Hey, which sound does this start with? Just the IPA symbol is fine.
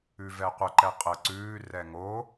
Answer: ʉ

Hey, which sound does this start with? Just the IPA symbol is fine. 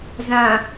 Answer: z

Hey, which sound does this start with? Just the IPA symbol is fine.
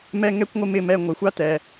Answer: m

